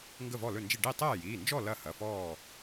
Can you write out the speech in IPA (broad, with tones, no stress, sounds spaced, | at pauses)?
ŋ ɡ ə˥˨ v ɔ˥˨ l ɵ˥˨ n d͡ʒ i˥˨ ɖ i˥˨ tˤ ɛː˥˨ j iː˩˧˩ n d͡ʒ ɔ˥˨ l ɐ˥˨ h ɐ˩˧˩ f ɔː˥˨